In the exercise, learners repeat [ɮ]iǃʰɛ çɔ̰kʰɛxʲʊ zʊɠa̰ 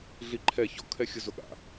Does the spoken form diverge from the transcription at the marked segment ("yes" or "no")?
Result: no